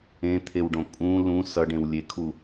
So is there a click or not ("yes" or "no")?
no